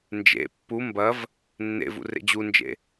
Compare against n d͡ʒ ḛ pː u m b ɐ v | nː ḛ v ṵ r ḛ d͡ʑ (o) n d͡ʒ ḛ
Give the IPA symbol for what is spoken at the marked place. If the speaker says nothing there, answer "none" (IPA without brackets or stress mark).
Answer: u